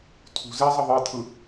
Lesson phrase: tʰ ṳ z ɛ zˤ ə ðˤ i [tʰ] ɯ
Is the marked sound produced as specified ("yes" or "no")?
yes